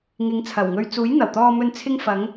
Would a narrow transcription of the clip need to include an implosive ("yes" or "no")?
no